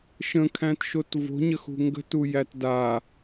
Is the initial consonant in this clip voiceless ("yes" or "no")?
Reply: yes